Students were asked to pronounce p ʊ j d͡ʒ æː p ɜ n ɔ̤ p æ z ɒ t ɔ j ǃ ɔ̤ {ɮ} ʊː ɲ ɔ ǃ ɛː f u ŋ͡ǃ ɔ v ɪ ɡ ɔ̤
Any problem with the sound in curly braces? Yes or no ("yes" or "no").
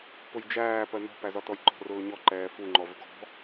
yes